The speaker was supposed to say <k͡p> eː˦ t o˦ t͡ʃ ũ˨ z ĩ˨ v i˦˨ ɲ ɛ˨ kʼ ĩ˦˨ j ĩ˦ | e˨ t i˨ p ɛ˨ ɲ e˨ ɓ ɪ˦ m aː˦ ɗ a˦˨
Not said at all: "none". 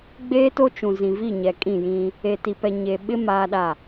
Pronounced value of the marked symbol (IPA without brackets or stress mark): ɡ͡b